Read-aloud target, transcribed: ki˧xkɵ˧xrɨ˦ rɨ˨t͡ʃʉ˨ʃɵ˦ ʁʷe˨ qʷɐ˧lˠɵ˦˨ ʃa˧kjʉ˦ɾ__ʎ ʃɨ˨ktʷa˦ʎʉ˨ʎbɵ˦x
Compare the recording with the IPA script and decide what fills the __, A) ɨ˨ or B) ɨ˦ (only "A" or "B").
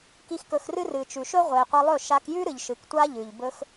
A